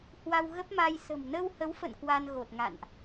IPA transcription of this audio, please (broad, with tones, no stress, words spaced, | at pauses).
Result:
hwa˧wɣə˦˥p̚ma˧j sə̤˨˩m nə˧whə˨˦wfə̰˧˨n kwa˧nɣo˨˩t̚ŋa̰˧˨nʔ